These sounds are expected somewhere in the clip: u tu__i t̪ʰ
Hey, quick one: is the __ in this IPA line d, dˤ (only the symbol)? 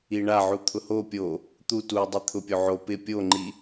dˤ